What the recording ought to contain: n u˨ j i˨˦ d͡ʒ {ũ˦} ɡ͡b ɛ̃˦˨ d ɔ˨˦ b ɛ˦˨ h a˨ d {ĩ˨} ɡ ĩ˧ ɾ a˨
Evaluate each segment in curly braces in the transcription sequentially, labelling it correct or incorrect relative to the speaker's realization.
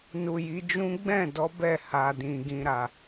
correct, correct

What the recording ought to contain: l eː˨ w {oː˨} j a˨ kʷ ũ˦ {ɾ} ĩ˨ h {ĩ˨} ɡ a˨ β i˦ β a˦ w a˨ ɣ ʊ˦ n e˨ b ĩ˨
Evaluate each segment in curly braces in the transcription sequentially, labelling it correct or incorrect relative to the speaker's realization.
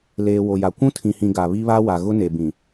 incorrect: o˨, incorrect: tʰ, correct

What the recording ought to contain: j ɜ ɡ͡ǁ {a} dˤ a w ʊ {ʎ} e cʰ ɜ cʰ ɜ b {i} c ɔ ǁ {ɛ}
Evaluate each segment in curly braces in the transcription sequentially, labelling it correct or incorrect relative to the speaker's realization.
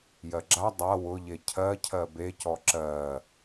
correct, correct, incorrect: e, incorrect: ɜ

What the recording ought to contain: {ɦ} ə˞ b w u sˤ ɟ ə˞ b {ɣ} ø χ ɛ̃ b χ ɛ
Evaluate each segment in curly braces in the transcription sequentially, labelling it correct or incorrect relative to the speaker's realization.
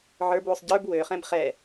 incorrect: ʕ, incorrect: w

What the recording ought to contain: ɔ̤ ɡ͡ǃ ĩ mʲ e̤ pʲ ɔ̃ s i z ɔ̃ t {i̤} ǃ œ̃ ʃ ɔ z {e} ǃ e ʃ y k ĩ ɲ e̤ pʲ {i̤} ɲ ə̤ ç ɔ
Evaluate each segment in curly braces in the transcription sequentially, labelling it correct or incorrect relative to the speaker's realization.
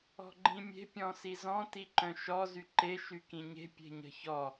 incorrect: i, incorrect: y, incorrect: e̤

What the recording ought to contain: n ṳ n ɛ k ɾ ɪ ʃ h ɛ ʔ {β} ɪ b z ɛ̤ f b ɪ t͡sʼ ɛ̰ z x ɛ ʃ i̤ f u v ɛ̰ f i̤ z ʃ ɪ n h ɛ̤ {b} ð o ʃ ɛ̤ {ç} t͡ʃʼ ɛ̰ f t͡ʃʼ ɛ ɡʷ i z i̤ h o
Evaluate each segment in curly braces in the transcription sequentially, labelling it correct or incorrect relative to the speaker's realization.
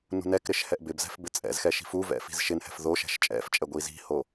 incorrect: b, incorrect: f, incorrect: ʃ

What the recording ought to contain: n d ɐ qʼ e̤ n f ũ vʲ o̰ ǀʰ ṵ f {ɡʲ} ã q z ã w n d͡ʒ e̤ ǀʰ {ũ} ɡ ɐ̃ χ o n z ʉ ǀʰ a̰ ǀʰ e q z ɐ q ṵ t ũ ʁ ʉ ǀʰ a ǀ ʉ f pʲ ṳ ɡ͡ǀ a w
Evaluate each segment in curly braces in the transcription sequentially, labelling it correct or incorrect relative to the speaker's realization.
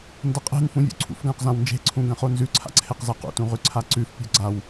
incorrect: ɡ, correct

